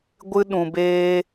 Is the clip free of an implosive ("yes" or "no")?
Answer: no